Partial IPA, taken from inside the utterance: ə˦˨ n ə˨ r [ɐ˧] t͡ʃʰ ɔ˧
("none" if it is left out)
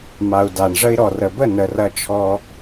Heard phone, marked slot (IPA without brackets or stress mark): ɐ˧